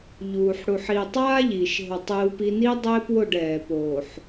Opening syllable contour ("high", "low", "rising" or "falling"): low